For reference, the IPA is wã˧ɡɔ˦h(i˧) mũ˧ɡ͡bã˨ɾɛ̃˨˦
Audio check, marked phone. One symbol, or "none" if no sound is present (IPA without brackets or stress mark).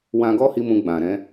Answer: i˧